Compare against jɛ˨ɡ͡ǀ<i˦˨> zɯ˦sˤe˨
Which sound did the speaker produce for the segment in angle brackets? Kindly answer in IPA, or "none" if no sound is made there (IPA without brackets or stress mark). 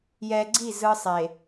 i˦˨